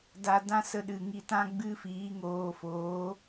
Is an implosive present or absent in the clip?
present